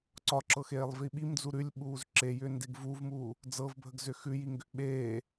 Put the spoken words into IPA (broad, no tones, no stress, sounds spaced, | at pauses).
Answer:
ǀ ɒ ǁ ɤ x eː lˠ v i ɓ i m d͡z u ɾ ʉ lʲ ɓ uː z ǁ e j ʏː n d e ɡ v u v m uː | d͡z ɤ v bʱ ə ɡ z ʏ x ʉ j i ŋ ɡ ʏ ʔ ɓ eː